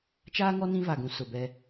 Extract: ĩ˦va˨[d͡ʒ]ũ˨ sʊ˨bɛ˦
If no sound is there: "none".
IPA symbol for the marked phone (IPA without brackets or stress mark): ɡ